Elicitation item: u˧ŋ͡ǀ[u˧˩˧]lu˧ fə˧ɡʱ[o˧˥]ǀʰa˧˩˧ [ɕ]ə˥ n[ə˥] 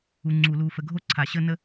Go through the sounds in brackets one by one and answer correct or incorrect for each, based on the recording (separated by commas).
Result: correct, incorrect, correct, correct